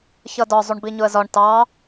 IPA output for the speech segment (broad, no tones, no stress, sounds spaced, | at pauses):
ç ʌ d ɒ zˤ u ɳ b i ɲ ʊ ə̯ z ɒ ɳ t ɑ